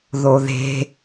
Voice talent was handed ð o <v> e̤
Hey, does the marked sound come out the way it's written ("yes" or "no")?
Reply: no